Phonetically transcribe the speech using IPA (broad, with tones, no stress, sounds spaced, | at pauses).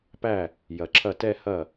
p æ˥˩ | j ɐ˨ ǁʰ ɐ˥˩ t ɛ˥˧ h ɐ˥˩